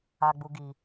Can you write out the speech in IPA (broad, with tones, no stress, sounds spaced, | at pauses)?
a˦ ɡ͡b u˦ ɡ i˧